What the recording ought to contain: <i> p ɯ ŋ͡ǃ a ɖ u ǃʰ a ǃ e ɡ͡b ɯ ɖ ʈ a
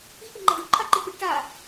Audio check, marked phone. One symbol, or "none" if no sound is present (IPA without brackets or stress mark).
i